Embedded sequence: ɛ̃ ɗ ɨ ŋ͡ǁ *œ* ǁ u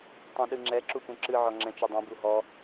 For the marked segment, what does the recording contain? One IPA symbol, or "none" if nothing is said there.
ɛ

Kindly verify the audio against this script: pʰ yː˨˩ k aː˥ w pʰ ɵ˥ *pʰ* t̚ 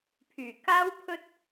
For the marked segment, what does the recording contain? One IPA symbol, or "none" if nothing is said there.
none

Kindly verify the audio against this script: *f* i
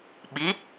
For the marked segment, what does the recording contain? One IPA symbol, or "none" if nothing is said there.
ɓ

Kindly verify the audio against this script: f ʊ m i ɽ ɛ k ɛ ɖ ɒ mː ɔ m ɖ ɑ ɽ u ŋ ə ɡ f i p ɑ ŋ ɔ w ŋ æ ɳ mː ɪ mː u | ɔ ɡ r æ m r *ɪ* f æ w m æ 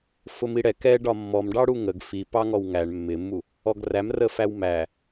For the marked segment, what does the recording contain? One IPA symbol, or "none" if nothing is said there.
ə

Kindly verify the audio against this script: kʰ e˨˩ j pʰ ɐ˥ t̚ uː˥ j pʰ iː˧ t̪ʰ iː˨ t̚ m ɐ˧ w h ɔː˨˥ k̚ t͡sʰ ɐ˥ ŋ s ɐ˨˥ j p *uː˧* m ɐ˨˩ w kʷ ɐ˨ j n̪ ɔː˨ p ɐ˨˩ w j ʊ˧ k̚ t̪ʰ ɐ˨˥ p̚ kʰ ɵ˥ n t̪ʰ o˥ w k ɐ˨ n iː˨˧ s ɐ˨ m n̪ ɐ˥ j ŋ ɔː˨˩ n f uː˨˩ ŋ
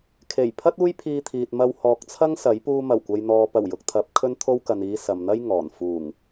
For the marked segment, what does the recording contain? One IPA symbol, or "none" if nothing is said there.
uː˧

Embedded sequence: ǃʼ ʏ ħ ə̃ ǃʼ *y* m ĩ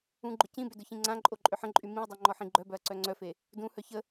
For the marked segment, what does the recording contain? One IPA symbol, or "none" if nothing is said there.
y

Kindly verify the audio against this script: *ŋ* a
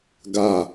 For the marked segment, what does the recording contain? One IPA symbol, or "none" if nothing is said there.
ɡ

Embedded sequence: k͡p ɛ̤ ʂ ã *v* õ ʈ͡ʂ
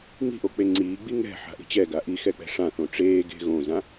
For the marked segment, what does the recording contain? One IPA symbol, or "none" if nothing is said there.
θ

